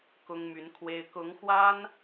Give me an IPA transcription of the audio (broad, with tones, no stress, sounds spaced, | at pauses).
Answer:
k ʊ˥ ŋ m y˧˥ n kʰ w e˥ ɪ̯ k ʊ˧˥ ŋ x w a˥ n